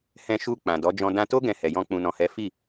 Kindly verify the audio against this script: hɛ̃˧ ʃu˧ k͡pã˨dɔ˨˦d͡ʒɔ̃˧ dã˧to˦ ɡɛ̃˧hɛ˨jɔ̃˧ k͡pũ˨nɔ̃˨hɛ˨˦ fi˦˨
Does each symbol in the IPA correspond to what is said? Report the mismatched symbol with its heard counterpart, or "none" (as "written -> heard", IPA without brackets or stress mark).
none